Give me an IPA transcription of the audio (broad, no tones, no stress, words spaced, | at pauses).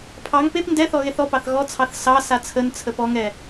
pʰɑŋ pep ndɛθɔ ɣeθɔpɑθ ɣɔt͡sʰɑθ sɑ sat͡sʰənt͡sʰəp ɔŋɛ